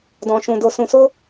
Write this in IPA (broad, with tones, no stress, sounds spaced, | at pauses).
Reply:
d ɔ̃˧ ʃ ũ˧ d o˧ s ũ˧ s o˦